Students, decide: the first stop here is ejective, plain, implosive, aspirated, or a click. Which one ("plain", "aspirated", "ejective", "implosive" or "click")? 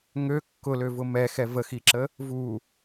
plain